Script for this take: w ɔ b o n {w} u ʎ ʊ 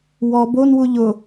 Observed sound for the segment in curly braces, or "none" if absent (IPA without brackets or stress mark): w